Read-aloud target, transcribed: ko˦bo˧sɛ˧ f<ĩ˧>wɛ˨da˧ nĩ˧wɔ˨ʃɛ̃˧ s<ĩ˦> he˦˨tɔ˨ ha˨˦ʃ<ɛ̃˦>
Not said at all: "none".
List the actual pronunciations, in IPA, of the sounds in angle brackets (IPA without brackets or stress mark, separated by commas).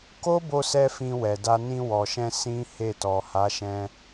ĩ˧, ĩ˦, ɛ̃˧